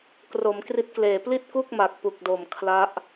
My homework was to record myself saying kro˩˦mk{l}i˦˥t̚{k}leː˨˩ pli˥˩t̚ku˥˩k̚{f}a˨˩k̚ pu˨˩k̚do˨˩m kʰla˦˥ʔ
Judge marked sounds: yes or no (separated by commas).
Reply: no, yes, no